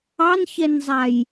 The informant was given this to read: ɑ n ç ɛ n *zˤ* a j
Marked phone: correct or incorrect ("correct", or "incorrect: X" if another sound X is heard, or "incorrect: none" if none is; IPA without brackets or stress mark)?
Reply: correct